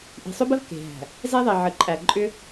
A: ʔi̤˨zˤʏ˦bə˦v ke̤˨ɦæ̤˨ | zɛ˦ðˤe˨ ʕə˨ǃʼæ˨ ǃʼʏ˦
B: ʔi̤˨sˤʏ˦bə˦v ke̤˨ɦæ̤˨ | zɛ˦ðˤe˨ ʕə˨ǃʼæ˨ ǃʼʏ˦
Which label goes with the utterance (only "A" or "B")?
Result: B